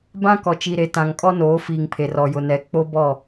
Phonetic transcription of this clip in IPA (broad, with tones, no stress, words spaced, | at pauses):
bã˦kɔ˨t͡ʃi˨ɾe˨ tã˨ŋkʼɔ˦noː˨˦ fiː˨ŋpʰe˨r ɔ˨jʊ˨nɛ˨ k͡po˦bɔ˦˨